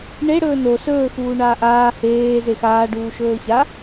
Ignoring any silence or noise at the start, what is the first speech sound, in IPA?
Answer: ɳ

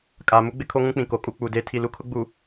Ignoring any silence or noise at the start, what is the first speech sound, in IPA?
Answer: kʼ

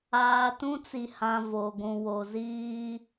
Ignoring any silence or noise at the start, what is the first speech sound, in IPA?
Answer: aː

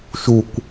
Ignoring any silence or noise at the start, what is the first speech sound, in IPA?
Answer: ʃ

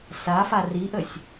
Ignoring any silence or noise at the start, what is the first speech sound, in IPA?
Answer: s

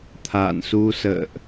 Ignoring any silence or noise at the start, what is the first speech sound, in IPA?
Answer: t̪ʰ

